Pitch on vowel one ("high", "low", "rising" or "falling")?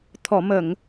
low